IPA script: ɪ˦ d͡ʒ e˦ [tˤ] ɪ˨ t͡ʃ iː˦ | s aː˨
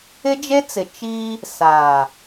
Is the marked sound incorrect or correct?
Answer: incorrect